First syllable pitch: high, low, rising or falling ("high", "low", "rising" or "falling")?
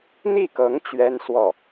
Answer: falling